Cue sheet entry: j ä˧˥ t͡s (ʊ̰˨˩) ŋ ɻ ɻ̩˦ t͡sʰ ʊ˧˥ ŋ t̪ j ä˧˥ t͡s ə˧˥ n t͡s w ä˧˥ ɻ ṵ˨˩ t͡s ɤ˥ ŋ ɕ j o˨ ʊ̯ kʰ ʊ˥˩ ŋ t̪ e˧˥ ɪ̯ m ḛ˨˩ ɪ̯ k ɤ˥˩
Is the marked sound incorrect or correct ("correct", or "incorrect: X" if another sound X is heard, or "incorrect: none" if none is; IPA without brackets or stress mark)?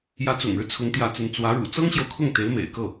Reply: correct